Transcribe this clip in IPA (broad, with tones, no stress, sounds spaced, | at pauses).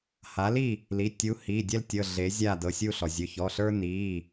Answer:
h a˨˥ l i˥˨ | l i˩˧˩ tʲ u˨˥ h i˩˧˩ dʲ ɛ˦ l tʲ ɤ˩˧˩ ɮ e˨˥ zʲ a˥˨ d ɤ˩˧˩ sʲ u˥˨ ɬ ɔ˩ zʲ ɵ˩˧˩ ç ɔ˩˧˩ ɬ ə˞˦ n i˩˧˩